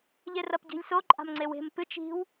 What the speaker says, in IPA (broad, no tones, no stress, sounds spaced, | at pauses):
ʎ e r ɐ p ɟ i̤ lʲ s o ǃʼ a̤ m ŋ͡ǀ e w e̤ m p ɨ t͡ʃ i̤ w